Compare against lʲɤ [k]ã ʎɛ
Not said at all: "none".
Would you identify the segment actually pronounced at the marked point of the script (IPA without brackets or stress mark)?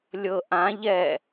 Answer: ʔ